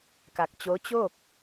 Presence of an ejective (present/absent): absent